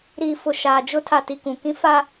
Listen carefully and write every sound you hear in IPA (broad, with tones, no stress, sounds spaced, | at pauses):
ɾ iː˨ f ʊ˨ ʃ aː˨ d͡ʒ ʊ˦ tʰ a˨ t i˨ k ũ˨ k ĩ˦ f a˦